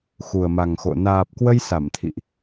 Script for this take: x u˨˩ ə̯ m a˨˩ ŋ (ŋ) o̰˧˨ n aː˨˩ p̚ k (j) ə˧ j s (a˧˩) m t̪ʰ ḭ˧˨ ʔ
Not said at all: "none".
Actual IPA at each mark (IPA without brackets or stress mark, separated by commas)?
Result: x, w, a˧˩